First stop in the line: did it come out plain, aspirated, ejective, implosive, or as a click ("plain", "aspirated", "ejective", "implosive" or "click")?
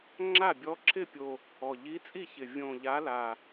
click